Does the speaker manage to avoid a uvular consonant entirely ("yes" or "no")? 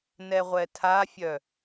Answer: no